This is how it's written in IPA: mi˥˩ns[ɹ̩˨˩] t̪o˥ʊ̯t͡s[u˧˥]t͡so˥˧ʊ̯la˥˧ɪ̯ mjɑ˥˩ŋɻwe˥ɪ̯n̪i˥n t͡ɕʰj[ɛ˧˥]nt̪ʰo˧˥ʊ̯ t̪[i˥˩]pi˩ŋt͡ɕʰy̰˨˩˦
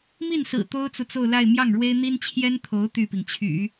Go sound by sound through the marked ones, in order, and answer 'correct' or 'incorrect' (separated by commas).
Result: correct, incorrect, incorrect, incorrect